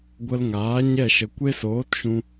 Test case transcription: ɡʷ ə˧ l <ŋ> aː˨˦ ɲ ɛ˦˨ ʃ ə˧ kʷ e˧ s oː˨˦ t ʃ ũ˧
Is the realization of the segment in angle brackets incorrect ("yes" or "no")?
no